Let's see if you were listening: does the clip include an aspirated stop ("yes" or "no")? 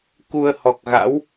no